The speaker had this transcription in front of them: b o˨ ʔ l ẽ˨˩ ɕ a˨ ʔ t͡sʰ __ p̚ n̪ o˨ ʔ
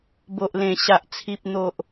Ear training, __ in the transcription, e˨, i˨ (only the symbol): i˨